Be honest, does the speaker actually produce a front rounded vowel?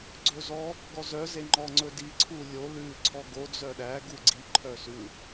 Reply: yes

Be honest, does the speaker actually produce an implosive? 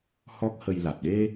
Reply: yes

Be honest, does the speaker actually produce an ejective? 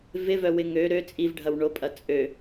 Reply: yes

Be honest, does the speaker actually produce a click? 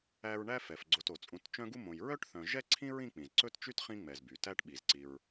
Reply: yes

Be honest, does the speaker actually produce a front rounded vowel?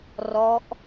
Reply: no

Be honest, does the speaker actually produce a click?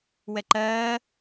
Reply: yes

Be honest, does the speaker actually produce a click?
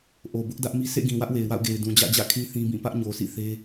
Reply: no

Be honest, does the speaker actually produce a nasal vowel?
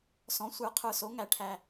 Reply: yes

